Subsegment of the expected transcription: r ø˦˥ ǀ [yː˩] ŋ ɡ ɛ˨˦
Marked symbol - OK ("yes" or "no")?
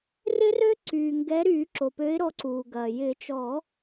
yes